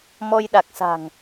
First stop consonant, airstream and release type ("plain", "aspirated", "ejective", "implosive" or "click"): implosive